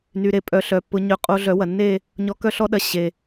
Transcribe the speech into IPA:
n y˧ ɾ e˦ pʼ œ˧ ɬ œ˨ pː ʊ˨˦ ɲ œ˧ qʼ o˧ ɮ œ˨˦ w ɐ˨ nː e˦˨ | ɲ ɔ˧ k œ˦ ɬ ɔ˦ ɗ ɐ˧ ɕ e˨

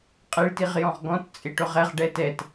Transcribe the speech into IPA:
qʼ ɪ ɭ t i ʁ j ɔ̃ ʁ ɡ ɔ̃ t t͡sʼ ɪ ʈ ʊ ʁ ɛ ʁ ɖ ɛ t ɛ t

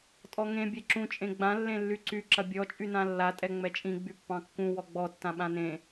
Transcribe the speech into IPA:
tʼ ɔ ŋ ẽ bʲ ɛ ǁ ũ t͡ʃʼ ẽ ɡ͡b ã lː ẽ lː y ǀ y ǁ ɐ bʲ ɔ t͡ʃʼ y n ã lː a tʼ ɛ ŋ͡m ɛ t͡ʃʼ ĩ ɡ͡b y pː ɑ̃ kː ũ w ɔ ɡ͡b ɔ tː ã ɓ ã n ẽ

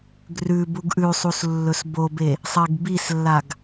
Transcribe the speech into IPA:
ɡ r ʉ b u ɡ ʔ ʉ sˤ u s lː ɵ s b o b e | sˤ e ɡ b i s lː a ɡ

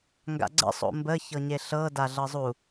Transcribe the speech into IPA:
ŋ ɡ a̰ ɡ͡ǀ ə̰ sˤ o̰ m b ə ç ɤ ɲ e ɬ ɤ d a ɮ ɤ zˤ u

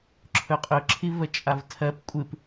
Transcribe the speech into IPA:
ǁʰ ɵ qʼ ɵ ǁʰ i v ə t͡ʃʼ a v tʰ ɜ p kʷʼ ɨ p

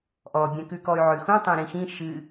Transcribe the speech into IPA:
ʔ ɔ bʲ ɛ̃ k ʉ k ɔ y̯ ʕ ʉ x ũ tˤ ɛ̃ ɾ ĩ x ĩ ʃ ɨ

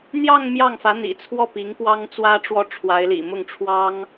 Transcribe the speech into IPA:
n̪ j ɑ˥˧ ŋ m j ɑ˥˩ ŋ f ä˧˥ n̪ ḭ˨˩ t͡sʰ w ɔ˥˩ p i˧˥ ŋ k w ɑ˥ ŋ t͡s w ä˥ ʈ͡ʂ w ɔ˥˩ ʈ͡ʂʰ w a˧˥ ɪ̯ l ḭ˨˩ m ʊ˥˩ ŋ ʈ͡ʂʰ w ɑ˥ ŋ

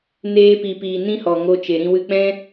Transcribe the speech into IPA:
n eː˦ p i˧ p iː˧ n ĩ˦ h ɔ˨ ŋ o˧ t͡ʃ e˨ ɾ ĩ˧ w ɨ˧ k͡p ɛ̃˦

